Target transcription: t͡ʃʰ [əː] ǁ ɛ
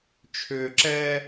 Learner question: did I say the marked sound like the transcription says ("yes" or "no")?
no